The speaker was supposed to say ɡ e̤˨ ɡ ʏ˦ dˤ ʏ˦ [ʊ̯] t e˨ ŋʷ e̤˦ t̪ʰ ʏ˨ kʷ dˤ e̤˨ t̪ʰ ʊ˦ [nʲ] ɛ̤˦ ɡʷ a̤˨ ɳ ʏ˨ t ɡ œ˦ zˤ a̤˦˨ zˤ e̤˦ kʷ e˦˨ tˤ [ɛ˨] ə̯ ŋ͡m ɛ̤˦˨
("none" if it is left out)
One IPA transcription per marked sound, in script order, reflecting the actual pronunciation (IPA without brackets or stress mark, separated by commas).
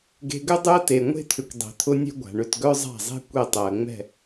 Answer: ə̯, nʲ, ɛ˨